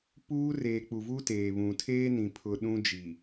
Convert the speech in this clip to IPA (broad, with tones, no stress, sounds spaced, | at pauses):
p uː˦ r eː˨ k͡p u˨ v uː˦ t eː˨ β ũ˨ tʰ eː˦ n ĩ˨ pʰ ʊ˨ ɗ ũ˦ d͡ʒ i˨